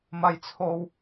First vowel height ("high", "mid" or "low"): low